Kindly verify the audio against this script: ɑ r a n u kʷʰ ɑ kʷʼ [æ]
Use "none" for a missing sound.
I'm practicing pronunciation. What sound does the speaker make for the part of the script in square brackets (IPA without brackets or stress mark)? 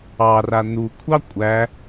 æ